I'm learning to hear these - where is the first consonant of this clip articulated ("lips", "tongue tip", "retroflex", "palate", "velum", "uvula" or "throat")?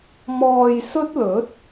lips